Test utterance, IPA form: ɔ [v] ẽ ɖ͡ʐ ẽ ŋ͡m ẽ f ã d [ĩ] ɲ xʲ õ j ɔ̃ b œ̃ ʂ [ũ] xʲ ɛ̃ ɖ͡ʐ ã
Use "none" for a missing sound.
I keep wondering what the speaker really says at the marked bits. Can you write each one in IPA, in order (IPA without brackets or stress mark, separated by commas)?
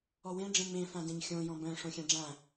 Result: w, ẽ, õ